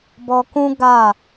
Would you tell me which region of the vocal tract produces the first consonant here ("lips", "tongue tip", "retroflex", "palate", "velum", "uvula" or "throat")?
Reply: lips